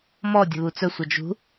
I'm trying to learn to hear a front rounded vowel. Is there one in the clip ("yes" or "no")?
yes